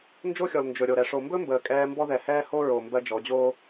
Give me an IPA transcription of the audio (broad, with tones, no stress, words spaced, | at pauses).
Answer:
nd͡ʒo˦xʲɔ˨l nd͡ʒɵ˨ɾʲo˨ɾɛ˨ ʂo˨mbɵ˦ mbəː˨kʼɛː˦ mbɔ˦ðɛ˨hɛː˦ ho˦ɹo˨ mbɜ˦d͡ʒɔ˨˦ d͡ʑoː˦